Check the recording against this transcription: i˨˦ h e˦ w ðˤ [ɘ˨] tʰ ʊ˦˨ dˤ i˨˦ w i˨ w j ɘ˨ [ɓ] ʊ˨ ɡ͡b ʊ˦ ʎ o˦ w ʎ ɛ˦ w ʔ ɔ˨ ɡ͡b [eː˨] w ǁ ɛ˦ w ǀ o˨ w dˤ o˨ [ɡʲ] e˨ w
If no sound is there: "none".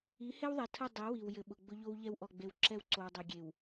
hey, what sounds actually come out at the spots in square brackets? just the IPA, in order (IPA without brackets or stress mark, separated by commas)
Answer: ɛ˨, ɓ, e˨, ɡʲ